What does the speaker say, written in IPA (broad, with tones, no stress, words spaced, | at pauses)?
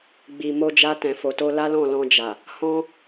ɡ͡bi˨mo˧d͡ʒa˧ tɛ̃˨fo˨ to˧la˦lɔ̃˦˨ lɔ̃˧d͡ʒa˨ | hɔ̃˦